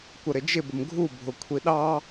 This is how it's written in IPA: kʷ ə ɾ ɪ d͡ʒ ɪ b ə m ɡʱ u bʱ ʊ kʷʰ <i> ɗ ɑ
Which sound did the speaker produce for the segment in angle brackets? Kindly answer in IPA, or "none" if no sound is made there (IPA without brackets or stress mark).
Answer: i